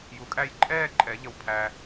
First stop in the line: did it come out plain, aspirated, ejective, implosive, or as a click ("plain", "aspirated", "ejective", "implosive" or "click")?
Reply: ejective